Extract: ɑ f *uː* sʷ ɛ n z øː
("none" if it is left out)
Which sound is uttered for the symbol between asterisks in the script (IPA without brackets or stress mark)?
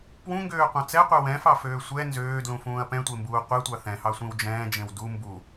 øː